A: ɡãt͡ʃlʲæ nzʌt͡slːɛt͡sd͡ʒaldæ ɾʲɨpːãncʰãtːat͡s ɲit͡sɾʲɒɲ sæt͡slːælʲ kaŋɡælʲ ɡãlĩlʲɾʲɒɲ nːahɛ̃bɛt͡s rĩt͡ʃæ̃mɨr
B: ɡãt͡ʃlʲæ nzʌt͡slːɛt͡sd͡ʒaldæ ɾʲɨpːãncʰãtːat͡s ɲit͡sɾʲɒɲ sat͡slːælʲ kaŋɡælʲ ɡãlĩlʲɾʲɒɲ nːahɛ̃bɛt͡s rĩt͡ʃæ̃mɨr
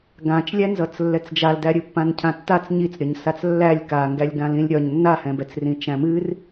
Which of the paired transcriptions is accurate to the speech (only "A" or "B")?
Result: B